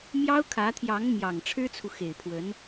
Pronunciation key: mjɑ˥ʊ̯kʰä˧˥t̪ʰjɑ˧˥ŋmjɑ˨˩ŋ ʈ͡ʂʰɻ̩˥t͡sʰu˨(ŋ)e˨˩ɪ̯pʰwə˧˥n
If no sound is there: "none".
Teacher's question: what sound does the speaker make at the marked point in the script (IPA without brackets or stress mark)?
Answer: x